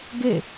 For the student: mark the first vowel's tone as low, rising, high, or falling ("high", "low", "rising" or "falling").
falling